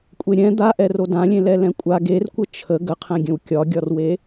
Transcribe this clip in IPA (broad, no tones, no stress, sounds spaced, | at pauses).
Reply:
kʷʼ e ɾʲ ɛ̃ d̪ a ʔ ɛ r o d ã lʲ ẽ l ɛ l ɛ̃ kʷʼ a ɡ e r kʷ ə t͡ʃʰ ə ɡ ə qʰ ɛ̃ ɡʲ ə̃ w kʲ ɒ ɡʲ ɒ r w e